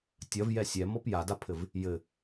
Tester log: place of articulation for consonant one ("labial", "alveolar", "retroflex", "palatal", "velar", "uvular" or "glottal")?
alveolar